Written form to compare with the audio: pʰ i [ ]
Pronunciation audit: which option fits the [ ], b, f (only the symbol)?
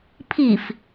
f